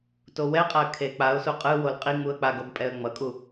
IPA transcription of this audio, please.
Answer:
t o w ɛ qʼ a ə̯ kʰ e k͡p a ʊ̯ s u qʼ ɯ w o l qʼ i ŋ͡m u ə̯ k͡p a ɡ ʌ b pʼ ɛ ə̯ ŋ͡m ʌ kʼ u

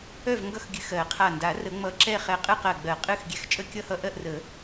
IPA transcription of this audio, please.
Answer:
œ˥˨ v ŋ ɡ ʌ˥˨ x ɡʲ ɨ˧˩ x ɜ˨˩˦ qʰ a˧˩ n d a˨˩˦ r ə˨˩˦ ŋ͡m ʌ˧˩ ǁ ɛ˥˨ χ ɛ˧˩ qʼ ɨ˥˨ q ɜ˧˩ ɡ͡b ɜ˨˩˦ qʼ ɨ˥˨ x ɡʲ ɛ˧˩ x t͡ʃʼ ə˥˨ kʲ ʌ˥˨ h ʌ˥˨ ʔ ɜ˥˨ ʔ r ə˨˩˦

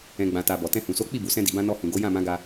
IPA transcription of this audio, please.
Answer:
ɛ̃˨ ɡ͡b ã˨ t a˨ b ɔ˨ t ɛ̃˧ h ũ˨ s o˨˦ k͡p i˦˨ b u˨ s ɛ̃˧ d i˨ b ã˧ n ɔ˧ h ũ˨ ɡ o˨˦ j ã˦˨ m ã˨˦ ɡ a˧

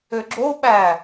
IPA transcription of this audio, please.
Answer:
ø ɡ͡ǁ o ɓ æ

